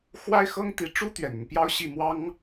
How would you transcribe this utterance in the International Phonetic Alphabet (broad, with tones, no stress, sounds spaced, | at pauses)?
x w a˥ ɪ̯ x ɤ˥ ŋ t̪ i˧˥ ʈ͡ʂ u˥ t̪ ɥ ɛ˨˩ n ə˦ n p j ɑ˥ ʊ̯ ɕ i˥˩ m w ɑ˥ ŋ